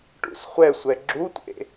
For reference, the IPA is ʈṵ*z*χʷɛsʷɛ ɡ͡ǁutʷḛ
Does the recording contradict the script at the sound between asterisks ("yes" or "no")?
yes